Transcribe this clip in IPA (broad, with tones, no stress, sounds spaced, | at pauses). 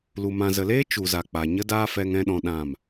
l u˨ m ã˨ z ə˨ l eː˦ t͡ʃ u˨ z a˨ k͡p a˨ ɲ ə˦ d aː˦ f ɛ˧ ŋ ɛ̃˧ ɗ ɔ̃˨ ɗ ã˦˨ m